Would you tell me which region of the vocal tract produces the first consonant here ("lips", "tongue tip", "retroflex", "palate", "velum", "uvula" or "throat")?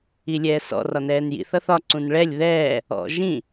tongue tip